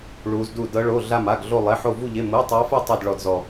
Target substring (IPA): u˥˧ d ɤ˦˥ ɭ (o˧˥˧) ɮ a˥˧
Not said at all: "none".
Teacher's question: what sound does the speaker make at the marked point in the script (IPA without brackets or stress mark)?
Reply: o˧˥˧